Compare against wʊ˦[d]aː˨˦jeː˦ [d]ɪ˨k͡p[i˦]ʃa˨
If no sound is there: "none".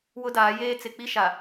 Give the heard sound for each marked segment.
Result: d, t͡s, i˦

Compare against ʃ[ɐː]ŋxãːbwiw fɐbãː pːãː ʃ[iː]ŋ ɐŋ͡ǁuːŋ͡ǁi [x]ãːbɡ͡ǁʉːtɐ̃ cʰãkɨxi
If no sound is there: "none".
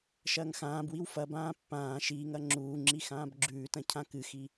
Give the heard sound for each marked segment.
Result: ɐː, iː, x

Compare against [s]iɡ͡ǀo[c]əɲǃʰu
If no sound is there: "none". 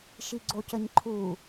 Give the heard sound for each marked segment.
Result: ʃ, c

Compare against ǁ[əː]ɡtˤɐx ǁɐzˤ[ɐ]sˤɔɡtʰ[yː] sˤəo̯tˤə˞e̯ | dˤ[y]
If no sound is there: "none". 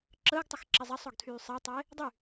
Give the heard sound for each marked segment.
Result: əː, ɐ, yː, y

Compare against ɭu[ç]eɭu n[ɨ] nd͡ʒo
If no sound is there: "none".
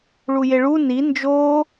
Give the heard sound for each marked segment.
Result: j, i

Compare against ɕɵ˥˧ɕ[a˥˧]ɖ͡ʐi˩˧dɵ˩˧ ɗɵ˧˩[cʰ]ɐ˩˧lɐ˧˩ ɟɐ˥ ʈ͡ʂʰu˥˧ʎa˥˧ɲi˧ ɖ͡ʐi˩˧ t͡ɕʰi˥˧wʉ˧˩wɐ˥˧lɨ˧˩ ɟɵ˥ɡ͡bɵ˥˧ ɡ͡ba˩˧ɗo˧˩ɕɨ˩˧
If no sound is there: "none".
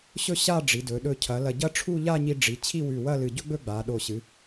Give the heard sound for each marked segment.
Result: a˥˧, cʰ

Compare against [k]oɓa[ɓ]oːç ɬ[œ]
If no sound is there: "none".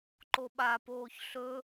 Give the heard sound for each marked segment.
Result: ǃ, p, ɵ

